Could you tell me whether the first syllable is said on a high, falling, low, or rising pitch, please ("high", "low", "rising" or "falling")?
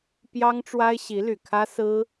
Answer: high